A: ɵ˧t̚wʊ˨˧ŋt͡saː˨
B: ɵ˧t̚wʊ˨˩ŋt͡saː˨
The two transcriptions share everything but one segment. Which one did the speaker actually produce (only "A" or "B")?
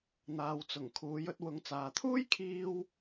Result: A